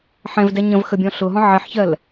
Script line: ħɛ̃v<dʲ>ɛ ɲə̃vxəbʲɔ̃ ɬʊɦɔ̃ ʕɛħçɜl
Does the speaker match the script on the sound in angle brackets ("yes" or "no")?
no